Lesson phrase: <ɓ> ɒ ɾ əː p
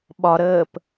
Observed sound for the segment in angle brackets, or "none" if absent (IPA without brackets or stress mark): ɓ